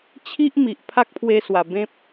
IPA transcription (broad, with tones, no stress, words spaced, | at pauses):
t͡ɕʰi˦ʔ mi˨ʔ pʰa˦k̚pʰwe˧swa˨˩ bẽ˦p̚